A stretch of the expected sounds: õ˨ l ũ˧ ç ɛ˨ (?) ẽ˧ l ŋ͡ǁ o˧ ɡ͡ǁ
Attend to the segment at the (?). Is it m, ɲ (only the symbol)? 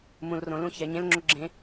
ɲ